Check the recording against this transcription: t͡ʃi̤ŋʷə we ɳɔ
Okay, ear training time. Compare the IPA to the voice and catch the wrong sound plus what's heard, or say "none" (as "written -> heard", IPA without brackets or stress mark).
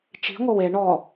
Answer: none